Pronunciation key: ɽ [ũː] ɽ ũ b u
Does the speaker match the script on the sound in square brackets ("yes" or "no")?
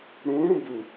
yes